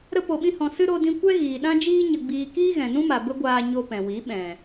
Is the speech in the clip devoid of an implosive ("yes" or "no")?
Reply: no